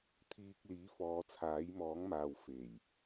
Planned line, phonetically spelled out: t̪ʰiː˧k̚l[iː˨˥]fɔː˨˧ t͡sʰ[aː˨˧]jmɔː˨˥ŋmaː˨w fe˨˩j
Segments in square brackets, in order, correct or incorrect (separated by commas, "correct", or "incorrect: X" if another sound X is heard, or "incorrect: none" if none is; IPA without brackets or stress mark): correct, incorrect: aː˨˥